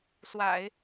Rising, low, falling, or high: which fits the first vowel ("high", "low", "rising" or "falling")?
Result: low